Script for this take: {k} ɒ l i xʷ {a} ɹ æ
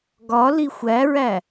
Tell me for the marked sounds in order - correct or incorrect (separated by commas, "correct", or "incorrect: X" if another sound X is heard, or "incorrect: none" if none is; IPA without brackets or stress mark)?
incorrect: ɡ, incorrect: æ